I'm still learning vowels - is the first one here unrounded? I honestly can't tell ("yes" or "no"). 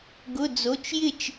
no